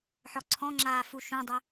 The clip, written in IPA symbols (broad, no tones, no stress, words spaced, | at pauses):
ħɔǀʰɔ̃ŋ͡ǁaː fuʃũdˤʏ